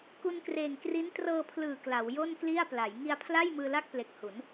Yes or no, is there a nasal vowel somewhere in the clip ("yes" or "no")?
no